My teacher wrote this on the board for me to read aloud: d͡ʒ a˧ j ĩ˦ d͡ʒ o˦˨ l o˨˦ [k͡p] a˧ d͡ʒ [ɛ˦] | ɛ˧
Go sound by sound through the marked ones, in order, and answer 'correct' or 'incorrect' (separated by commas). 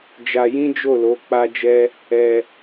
correct, correct